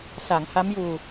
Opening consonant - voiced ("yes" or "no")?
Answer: no